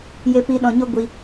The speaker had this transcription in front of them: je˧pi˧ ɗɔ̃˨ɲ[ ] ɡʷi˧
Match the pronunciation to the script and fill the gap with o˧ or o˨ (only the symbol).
o˧